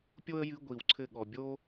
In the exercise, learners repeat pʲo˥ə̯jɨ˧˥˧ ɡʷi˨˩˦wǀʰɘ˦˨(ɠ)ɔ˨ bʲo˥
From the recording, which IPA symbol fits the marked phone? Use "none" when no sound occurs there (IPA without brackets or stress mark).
ɠ